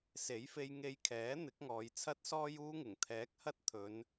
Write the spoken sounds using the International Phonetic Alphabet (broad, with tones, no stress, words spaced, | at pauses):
se˨˥jfe˧j ŋe˧jkʰɛː˨˥ n̪ɪ˨˥k̚ŋɔː˨j t͡sʰɐ˧t̚sɔː˧j uː˥ŋɪ˨˩ŋt̪ʰɛː˨˥k̚ hɐ˥t̚ t̪ʰɵ˨˧n